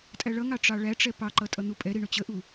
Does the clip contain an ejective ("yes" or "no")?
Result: yes